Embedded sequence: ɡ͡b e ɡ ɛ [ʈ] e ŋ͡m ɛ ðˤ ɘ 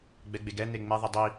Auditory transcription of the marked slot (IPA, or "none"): n̪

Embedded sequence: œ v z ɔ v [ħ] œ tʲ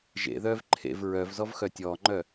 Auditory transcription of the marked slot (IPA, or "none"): x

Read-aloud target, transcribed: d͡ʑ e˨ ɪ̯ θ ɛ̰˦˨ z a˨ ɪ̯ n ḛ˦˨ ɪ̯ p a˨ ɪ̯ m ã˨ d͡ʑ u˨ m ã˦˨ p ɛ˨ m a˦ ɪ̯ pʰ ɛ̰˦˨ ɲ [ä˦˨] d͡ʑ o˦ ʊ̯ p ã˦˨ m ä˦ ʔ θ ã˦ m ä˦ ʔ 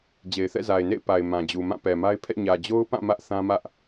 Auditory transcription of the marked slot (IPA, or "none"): ä˨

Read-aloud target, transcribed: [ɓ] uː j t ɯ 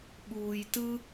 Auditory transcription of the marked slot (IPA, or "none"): ɓ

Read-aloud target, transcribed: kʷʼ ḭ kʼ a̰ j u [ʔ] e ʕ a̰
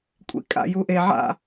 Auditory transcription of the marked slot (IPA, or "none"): ʔ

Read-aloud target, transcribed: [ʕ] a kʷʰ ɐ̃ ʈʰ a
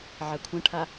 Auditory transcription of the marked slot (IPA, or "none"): ʕ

